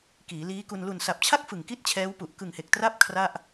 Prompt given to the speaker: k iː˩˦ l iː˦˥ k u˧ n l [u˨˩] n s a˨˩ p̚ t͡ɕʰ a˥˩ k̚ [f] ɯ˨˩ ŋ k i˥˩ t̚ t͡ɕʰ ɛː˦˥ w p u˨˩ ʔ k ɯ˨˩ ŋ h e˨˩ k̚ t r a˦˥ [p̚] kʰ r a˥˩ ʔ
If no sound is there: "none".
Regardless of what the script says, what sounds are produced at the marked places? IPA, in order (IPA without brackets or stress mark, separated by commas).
u˨˩, f, p̚